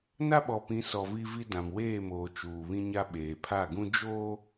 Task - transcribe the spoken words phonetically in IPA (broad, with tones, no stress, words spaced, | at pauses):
na˦ɓɔ˨pĩ˨˦sɔ˨ vi˦ vi˦ dã˨mweː˦˨moː˨ t͡ʃuː˨βĩ˦ɲa˦ ɓeː˨pʰa˦˨ɡũ˦ d͡ʒoː˦